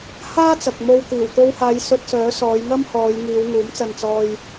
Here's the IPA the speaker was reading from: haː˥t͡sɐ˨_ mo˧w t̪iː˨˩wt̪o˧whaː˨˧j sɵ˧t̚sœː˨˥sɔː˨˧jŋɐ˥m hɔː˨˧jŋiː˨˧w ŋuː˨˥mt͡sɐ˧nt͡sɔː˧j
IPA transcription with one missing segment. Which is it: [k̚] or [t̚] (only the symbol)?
k̚